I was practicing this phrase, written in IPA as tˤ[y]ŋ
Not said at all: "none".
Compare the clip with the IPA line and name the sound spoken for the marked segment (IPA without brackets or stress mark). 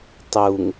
u